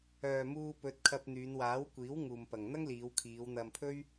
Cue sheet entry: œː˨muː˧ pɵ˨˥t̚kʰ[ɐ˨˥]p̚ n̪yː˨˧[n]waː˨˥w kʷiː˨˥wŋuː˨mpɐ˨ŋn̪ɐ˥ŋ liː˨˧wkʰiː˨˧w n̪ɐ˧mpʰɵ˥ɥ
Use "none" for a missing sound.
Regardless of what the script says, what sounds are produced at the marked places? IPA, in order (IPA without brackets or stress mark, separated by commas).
ɐ˧, n